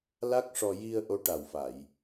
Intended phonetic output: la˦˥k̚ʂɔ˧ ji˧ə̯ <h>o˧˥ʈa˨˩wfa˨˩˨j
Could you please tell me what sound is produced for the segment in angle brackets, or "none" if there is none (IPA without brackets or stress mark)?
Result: ʔ